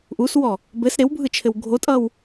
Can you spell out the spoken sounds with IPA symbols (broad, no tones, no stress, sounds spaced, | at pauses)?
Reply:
ʔ u s w ɔ | b ɘ s ɾ ɪ w bʱ ɯ t͡ʃʰ ɘ w ɡʱ o tʼ ʌ w